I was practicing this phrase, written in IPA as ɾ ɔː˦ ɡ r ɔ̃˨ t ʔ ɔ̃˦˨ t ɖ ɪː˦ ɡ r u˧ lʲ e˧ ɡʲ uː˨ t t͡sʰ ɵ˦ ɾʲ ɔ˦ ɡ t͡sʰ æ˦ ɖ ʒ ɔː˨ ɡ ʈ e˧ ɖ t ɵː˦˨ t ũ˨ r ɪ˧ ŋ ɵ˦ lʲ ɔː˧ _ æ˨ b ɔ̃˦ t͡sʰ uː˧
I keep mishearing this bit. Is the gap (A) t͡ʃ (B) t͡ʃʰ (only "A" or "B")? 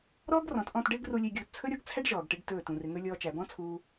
A